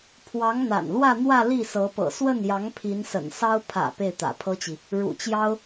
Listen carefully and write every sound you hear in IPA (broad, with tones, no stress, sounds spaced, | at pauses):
pʰ w ɑ˧˥ ŋ n̪ a̰˨˩ n l w ä˥˧ n̪ w ä˥˧ l i˥˩ s ɤ˧˥ p ɤ̰˨˩ s w ə˥˩ n j ɑ˧˥ ŋ pʰ i˧˥ n s ə̰˨˩ n s ɑ˥ ʊ̯ pʰ ä̰˨˩ p e˥˩ ɪ̯ t̪ ä̰˨˩ pʰ ɤ˥ t͡ɕ i˨ | ɻ ṵ˨˩ t͡ɕ j ɑ˥ ʊ̯